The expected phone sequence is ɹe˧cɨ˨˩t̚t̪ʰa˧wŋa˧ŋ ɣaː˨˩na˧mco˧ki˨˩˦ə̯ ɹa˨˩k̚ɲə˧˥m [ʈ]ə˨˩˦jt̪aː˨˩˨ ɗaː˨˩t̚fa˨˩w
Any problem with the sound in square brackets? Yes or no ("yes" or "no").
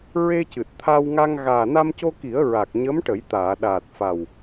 no